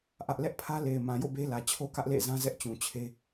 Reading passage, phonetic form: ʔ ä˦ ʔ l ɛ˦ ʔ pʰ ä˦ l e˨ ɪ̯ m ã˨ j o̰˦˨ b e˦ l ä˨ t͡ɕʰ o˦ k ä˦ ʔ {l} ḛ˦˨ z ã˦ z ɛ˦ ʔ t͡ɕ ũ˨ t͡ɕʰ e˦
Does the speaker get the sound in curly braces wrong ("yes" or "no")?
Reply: no